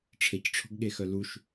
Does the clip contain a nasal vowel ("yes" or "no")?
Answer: no